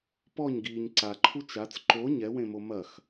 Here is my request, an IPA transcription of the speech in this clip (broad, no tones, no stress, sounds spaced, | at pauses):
p ɔ ɲ ɡ iː ɲ ǀ a ǃʰ u t͡ʃ a t͡s ǃ o ɲ ɛ w ẽ m o m ɐ x